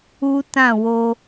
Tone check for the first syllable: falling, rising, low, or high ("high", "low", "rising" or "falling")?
high